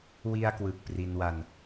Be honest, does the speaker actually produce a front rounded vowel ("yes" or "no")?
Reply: no